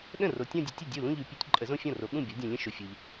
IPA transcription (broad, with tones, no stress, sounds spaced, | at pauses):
ɗ ə̃˥˩ r o˨˦ tʲ ɔ̃˥˧ dʲ ə˨˦ tʲ ə˥˩ dʲ u˥˩ l ũ˥˧ ʎ ʉ˨˦ pʲ ʉ˨˦ tʲ ǃʼ ə˨˦ z õ˥˧ fʲ ɔ̃˥˩ r o˨˦ ɠ ũ˥˩ bʲ ɔ˨˦ dʲ õ˨ lʲ ə̃˥˧ ʃ o˨ fʲ o˨ ʎ